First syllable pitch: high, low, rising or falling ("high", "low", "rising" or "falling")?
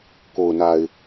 low